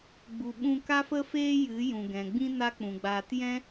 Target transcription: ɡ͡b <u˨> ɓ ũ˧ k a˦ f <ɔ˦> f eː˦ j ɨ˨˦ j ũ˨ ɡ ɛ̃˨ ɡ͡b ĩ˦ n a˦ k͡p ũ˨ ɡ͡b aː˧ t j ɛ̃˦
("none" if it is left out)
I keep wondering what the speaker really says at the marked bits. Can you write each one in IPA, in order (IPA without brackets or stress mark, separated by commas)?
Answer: u˨, ə˦